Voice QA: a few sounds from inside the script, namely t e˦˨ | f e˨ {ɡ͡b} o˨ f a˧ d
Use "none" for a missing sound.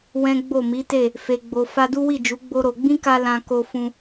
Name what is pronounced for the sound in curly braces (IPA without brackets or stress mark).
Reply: ɡ͡b